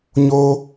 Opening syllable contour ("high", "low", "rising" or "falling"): high